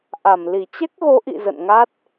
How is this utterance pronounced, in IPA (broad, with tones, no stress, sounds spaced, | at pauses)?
ʔ a˧˩ m l i˧˩ t͡ɕ ɛ˦˥ k̚ ɣ o˨˦ ʔ ḭ˧˨ z ə̰˧˨ n ŋ a˦˥ t̚